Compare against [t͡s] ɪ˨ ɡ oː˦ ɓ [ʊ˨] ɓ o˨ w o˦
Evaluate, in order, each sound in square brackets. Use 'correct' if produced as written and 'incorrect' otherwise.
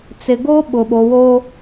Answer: correct, correct

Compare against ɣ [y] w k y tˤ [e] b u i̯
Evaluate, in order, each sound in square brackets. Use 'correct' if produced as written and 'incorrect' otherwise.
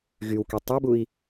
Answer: correct, correct

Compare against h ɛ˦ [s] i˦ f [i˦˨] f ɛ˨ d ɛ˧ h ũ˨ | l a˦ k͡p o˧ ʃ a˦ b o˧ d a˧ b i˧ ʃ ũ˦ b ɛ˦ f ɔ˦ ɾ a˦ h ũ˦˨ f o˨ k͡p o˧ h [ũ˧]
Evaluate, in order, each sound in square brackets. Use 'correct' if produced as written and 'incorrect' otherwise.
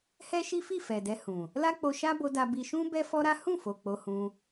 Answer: incorrect: ʃ, correct, correct

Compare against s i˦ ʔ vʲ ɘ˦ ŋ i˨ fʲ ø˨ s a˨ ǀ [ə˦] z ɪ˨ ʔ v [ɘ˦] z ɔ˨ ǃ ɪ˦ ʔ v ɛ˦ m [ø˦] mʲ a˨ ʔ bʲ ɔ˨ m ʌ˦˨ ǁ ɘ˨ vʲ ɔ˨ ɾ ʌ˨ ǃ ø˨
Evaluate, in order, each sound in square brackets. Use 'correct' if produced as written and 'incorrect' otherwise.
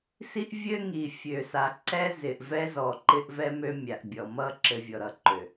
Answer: incorrect: ɛ˦, incorrect: ɛ˦, correct

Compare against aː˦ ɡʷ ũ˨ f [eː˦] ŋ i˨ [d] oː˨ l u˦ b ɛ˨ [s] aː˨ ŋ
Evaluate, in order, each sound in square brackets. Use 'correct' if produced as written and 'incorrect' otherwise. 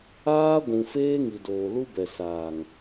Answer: correct, correct, correct

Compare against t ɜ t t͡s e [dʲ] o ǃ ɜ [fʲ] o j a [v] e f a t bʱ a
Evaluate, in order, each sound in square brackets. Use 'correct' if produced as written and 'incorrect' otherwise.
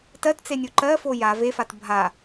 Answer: incorrect: nʲ, incorrect: f, correct

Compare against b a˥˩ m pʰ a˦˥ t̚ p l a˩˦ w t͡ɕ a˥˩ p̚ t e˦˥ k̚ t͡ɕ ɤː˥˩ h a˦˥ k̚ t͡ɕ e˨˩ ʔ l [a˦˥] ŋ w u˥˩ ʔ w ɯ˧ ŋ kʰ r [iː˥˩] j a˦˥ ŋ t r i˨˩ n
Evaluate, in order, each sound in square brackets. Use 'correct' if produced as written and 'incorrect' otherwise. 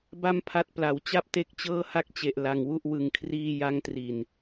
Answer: incorrect: a˧, correct

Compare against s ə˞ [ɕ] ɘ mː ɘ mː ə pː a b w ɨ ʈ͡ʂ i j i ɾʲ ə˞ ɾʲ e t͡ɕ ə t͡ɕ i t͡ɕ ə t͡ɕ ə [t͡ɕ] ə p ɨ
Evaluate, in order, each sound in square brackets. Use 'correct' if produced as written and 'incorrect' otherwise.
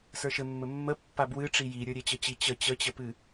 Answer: incorrect: ʃ, correct

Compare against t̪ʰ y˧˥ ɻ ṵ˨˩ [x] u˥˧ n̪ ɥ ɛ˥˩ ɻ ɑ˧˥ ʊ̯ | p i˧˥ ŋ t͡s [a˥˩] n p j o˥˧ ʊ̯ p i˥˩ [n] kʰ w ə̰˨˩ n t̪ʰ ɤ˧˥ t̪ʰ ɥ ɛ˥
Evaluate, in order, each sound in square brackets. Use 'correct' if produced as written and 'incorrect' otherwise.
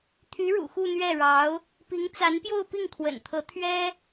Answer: correct, incorrect: a˧˥, incorrect: ŋ

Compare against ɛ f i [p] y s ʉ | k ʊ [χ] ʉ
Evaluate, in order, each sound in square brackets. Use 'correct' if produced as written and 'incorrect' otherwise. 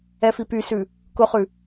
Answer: correct, correct

